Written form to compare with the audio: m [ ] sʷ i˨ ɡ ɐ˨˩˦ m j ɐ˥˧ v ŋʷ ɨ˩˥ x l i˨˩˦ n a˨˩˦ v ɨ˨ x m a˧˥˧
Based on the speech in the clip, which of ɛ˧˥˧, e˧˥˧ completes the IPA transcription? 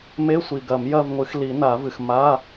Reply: e˧˥˧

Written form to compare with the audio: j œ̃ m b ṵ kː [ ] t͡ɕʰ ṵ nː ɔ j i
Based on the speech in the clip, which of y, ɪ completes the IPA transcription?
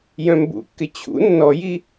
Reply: ɪ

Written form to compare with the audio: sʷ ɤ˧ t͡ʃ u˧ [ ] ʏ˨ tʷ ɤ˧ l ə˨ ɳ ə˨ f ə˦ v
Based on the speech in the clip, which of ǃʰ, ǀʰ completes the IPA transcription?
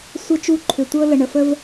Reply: ǃʰ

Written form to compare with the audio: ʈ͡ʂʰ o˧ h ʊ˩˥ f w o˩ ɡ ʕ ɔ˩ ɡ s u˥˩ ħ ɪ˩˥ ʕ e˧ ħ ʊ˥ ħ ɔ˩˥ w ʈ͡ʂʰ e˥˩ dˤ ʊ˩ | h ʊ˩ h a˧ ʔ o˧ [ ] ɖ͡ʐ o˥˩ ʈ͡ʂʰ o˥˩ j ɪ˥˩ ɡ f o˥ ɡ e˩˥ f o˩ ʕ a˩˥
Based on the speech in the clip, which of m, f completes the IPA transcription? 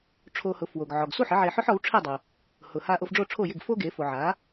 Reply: f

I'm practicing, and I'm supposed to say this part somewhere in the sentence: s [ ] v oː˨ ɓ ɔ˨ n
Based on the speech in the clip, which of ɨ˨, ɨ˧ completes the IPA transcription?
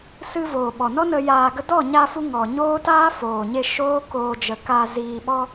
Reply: ɨ˧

